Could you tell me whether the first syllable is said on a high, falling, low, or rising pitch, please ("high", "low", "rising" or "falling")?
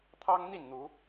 high